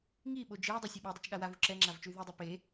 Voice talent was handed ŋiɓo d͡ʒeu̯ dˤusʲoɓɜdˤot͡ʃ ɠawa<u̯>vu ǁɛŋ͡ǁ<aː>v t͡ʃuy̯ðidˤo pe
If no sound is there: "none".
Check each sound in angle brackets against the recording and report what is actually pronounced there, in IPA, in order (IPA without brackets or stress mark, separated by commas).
none, a